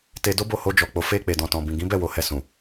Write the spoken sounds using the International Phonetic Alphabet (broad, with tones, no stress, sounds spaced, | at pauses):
t e˧ d o˦ b o˦˨ h o˧ d͡ʒ ɔ˨ k͡p o˨ f e˧ k͡p e˨ d ɔ̃˨ t ɔ̃˨ b ĩ˨ ɡ ĩ˨˦ b ɛ˦˨ w o˨ h ɛ˨ s ũ˨